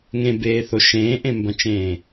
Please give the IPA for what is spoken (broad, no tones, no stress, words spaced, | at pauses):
ŋẽbeːθo ʃẽːʔẽmbɐ̃t͡ʃẽː